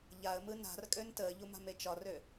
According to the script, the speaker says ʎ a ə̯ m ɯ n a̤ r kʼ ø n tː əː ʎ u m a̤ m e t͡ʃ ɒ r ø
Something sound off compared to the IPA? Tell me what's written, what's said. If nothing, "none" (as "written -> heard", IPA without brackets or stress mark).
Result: tː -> t